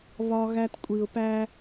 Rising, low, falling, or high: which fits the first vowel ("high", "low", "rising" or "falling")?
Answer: high